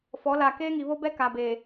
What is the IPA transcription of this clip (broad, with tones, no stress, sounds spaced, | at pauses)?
f ɔ˨˦ l a˨ k eː˦ ŋ i˨ β o˦ b ɛ˦ k a˨ b eː˨